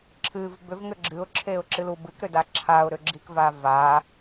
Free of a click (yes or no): no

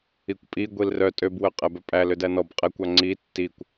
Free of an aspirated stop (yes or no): yes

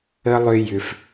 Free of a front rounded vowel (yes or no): no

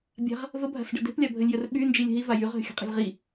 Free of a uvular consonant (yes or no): no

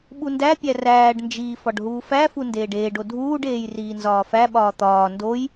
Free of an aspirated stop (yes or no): yes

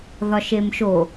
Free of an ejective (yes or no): yes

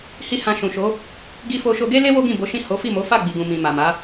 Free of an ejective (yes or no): yes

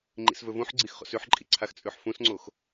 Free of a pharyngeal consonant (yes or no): no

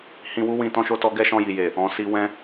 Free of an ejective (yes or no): yes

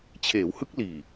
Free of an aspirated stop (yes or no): no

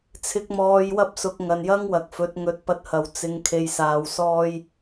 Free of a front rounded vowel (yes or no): yes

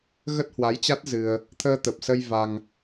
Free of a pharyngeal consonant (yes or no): yes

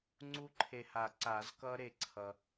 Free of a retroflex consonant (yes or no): yes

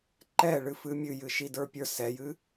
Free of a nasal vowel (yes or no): yes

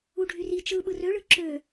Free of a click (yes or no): no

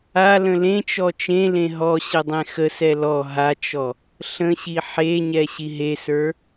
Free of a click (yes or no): yes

